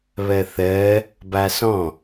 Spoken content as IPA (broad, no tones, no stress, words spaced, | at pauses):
βɜθɜ | basɔ̃